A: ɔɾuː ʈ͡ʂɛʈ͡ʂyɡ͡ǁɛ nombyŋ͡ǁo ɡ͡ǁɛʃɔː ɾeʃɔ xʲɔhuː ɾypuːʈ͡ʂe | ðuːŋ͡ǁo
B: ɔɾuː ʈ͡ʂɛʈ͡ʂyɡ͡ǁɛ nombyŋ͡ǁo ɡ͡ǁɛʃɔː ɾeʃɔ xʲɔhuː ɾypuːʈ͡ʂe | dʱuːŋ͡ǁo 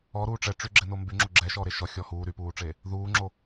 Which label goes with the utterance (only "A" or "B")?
A